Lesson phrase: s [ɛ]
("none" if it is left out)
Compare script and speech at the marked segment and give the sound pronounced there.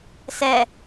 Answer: ɛ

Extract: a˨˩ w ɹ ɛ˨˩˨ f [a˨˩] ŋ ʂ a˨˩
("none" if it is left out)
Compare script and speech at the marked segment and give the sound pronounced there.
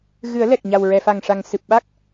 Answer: a˨˩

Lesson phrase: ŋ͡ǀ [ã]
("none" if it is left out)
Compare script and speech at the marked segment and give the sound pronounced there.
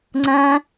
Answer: ã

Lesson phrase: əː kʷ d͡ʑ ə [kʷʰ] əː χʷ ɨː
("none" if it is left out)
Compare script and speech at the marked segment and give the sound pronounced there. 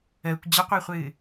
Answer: qʷ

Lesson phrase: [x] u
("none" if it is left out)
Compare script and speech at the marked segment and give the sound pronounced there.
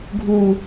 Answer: ɡʱ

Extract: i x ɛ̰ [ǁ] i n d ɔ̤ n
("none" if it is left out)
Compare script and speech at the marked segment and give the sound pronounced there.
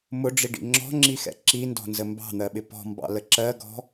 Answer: ǁ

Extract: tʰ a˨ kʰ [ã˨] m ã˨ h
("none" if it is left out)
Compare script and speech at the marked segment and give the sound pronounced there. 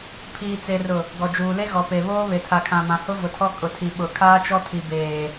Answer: ã˨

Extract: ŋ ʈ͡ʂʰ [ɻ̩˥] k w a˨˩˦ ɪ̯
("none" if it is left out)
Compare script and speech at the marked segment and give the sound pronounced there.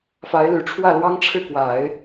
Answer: ɻ̩˥˩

